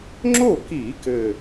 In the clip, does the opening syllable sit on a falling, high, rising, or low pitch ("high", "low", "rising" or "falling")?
falling